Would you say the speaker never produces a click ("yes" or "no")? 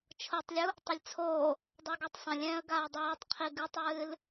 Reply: yes